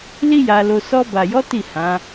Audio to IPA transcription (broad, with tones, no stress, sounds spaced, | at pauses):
l i˦ j a˧ l o˧ s ɔ˧ b a˨ j ɔ˨˦ t i˦˨ h ã˨˦